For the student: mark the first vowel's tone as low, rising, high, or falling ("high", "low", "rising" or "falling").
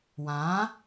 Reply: rising